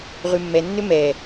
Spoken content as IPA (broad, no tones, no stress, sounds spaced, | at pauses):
ʁ ʉ mː ɛ nː ø m ɛ